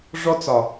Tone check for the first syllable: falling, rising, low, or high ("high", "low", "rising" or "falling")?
high